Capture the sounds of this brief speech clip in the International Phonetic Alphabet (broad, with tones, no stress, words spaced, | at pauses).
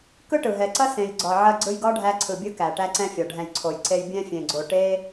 kɯ˦ʈɯ˨ɦɛ˨ǀɐ˦ sẽ˨jɡ͡ǀɒ˨ ʕɐ˧ɡ͡ǀɯ˧jɡɒ˦ ɖʱæ˧ǀʰɯ˨bʲɯ˧ kæ˨ʈæ˦ǀɛ̃˦fʲɒ˨ ɖʱɛ̃˨jǀʰo˨jǀe˧j bʲɛ̃˧fʲẽ˨ɡ͡ǀo˨ ʈe˦